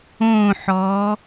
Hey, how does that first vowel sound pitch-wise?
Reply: falling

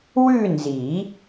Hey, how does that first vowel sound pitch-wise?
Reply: falling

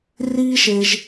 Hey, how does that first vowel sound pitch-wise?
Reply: high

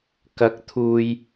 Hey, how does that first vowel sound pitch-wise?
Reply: rising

